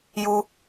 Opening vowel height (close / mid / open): close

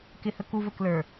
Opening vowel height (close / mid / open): close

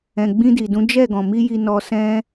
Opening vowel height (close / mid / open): mid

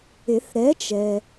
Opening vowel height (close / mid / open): close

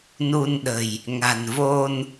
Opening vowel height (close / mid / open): close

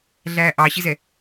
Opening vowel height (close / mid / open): open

